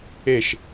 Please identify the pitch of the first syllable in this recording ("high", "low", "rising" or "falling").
falling